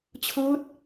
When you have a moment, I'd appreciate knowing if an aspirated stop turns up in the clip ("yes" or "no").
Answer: yes